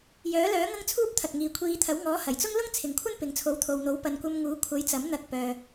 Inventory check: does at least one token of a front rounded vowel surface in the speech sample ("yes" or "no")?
yes